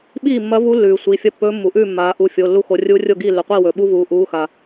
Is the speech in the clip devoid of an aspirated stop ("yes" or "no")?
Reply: yes